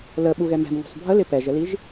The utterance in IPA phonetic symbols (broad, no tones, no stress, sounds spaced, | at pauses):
l ə ɓ u ɣ ɛ m ɛ̤ m ŋ ṳ sˤ bʱ ə l ɪ p ɛ ʒ ə l i ʒ